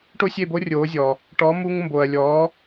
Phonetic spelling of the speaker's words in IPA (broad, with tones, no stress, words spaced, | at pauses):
ʈo˥sʲe˥˩bo˥ rʲoː˩˥zʲɔ˩ | ʈɔ˩˥mu˧ŋmbo˩ɐ̯lʲɔː˩˥